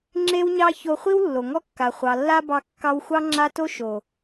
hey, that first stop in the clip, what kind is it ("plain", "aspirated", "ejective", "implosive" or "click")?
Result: click